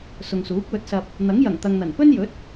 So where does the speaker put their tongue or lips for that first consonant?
tongue tip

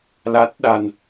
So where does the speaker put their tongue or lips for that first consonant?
tongue tip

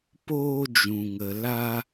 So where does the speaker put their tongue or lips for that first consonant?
lips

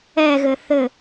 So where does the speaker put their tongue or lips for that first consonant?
velum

